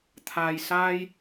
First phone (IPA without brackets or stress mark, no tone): t̪ʰ